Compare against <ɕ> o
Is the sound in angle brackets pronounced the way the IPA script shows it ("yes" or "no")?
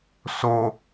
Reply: no